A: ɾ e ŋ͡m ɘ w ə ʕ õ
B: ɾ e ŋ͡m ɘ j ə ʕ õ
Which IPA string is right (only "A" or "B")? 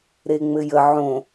B